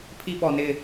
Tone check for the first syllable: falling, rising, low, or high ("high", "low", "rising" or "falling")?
high